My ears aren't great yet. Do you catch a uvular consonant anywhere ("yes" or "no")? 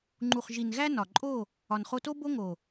yes